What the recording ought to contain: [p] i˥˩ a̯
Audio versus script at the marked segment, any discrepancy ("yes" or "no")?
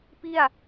no